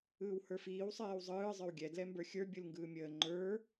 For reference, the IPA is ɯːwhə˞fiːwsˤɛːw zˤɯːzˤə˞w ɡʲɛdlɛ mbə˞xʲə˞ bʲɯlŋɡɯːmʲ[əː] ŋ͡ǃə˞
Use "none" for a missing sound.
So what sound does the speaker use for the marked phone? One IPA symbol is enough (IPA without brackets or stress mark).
əː